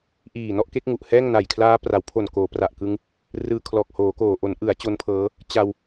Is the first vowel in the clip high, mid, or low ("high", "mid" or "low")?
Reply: high